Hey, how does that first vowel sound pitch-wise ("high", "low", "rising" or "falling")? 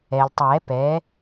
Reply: low